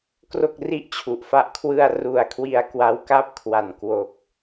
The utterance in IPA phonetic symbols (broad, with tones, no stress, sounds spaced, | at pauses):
k r o˥˩ k̚ r i˥˩ ʔ t͡ɕʰ u˨˩ ʔ f a˦˥ ʔ kʰ w ɯ˧ a̯ r u˨˩ a̯ kʰ w i˧ a̯ k w a˦˥ w k a˥˩ p̚ kʰ w a˨˩ n k w o˨˩ k̚